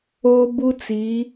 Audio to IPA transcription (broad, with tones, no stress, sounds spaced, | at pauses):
oː˦ b u˦ t͡s i˨˦